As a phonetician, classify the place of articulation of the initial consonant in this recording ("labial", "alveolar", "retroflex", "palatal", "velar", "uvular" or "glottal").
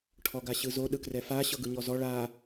retroflex